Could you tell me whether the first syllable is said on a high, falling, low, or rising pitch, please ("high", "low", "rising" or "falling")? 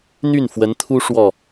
falling